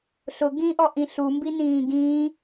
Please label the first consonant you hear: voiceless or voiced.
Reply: voiceless